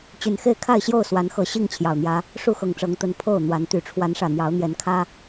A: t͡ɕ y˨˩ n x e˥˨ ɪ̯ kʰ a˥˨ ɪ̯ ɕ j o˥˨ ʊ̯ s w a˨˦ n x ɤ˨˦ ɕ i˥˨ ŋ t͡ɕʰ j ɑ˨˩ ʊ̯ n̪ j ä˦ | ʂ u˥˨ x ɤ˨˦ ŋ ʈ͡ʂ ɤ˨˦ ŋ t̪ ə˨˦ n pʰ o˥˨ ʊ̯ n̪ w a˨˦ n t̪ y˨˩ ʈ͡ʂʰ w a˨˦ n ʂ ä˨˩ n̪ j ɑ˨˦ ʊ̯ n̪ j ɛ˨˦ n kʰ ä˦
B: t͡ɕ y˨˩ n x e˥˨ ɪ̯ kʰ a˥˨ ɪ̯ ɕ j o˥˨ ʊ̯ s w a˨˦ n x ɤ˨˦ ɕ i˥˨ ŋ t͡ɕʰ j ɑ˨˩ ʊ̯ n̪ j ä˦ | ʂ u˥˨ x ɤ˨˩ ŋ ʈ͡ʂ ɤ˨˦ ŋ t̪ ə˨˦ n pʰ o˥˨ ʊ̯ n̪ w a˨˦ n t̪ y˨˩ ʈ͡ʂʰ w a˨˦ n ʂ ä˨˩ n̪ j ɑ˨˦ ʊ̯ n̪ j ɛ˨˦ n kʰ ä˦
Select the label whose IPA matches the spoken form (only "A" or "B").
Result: B